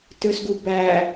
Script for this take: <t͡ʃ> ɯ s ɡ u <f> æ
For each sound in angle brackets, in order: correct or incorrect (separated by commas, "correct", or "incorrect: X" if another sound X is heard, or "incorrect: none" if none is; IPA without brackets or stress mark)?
incorrect: t, incorrect: b